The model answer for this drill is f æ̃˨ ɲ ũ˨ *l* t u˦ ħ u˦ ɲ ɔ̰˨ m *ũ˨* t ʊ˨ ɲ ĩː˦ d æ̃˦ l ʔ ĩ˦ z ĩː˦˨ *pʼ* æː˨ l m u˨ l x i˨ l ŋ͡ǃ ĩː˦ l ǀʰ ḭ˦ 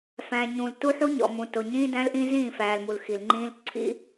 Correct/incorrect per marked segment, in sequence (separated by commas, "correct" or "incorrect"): correct, correct, incorrect